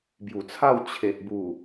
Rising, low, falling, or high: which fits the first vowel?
low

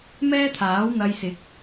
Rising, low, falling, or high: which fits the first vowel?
high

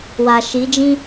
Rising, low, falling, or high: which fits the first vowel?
low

